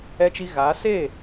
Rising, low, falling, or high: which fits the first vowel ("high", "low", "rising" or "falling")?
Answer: high